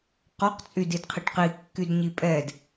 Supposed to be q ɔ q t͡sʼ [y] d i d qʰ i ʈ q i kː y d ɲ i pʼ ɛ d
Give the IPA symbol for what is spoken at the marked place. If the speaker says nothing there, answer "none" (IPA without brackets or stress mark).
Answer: y